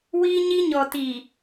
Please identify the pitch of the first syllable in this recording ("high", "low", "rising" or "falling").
high